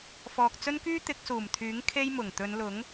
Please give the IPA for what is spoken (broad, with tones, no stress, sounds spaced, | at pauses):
f ɔː˨ k̚ t͡s ɵ˥ n k yː˥ t̪ ɪ˨˥ k̚ s uː˨˩ m t̪ʰ yː˨˥ ŋ kʰ e˥ j m ʊ˨˩ ŋ t̪ ɵ˨˧ n l ʊ˨˥ ŋ